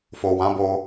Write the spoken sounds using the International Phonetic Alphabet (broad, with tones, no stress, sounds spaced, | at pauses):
f o˨ w ã˨˦ b o˧